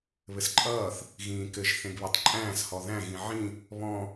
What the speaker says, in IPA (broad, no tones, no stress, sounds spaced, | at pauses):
β ɘ s ǃʼ ʌː θ | ɣ ĩː k ɘ ʒ θ ẽ ɡ β e tˤ ǃʼ æ̃ː s h ɔ ð æ̃ ɣ ĩ ʕ ĩ | β ɔ̃